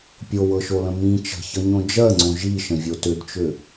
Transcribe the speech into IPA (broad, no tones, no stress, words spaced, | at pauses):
pʲowɤʃolə̃ mĩ t͡ʃə̤çʌɲõ d͡ʒɜŋ͡ǀõ ʒiʃə̃vʲo tʏdt͡ʃʏ